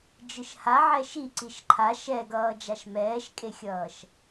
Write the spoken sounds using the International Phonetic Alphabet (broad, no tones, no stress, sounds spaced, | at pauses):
d͡ʒ ɯ ʃ h a ʕ ɛ ʃ i ǀ i ʃ ǃʰ a ʃ ɛ ɡ ʌː d͡ʒ a ʃ m ɛː ʃ kʼ e xʲ ʌː ʃ